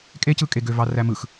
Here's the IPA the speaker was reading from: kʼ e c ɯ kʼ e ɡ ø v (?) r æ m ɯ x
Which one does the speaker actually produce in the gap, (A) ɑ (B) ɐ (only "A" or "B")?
A